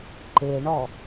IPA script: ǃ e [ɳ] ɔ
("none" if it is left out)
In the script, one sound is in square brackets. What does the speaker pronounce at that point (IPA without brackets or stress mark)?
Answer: ɳ